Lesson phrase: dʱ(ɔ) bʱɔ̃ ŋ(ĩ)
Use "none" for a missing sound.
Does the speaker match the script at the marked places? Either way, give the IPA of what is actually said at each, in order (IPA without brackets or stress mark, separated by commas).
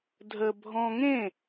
ə, ẽ